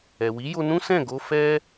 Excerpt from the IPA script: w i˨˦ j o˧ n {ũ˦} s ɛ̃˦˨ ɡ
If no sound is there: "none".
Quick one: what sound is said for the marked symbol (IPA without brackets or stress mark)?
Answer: ũ˦